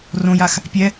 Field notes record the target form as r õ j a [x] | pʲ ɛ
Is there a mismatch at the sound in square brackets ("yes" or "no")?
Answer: no